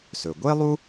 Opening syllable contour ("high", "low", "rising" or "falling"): low